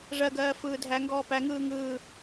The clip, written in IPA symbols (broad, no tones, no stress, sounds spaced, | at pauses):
ʐ ɜ ɡ ɜː f ɯː dʱ æ ŋ ɡ ɔː p æ ŋ ɯː ŋ ɯː